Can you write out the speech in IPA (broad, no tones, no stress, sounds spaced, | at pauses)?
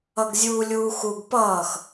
ʌ ɡ zʲ uː lʲ uː x u ɡ p ʌː x